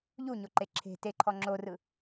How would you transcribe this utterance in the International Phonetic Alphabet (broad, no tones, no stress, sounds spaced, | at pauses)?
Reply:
ʎ u ɲ o ǃ e ǁʰ e̤ t e ǃʰ ɔ ŋ͡ǁ o r ɯ